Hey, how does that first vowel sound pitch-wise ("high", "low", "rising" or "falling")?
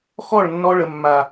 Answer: falling